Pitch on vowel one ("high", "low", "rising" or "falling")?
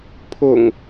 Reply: low